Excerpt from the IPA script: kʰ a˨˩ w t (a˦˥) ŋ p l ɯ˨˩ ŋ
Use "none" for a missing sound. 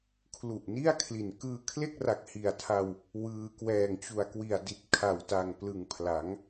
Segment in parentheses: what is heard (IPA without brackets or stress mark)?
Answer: a˨˩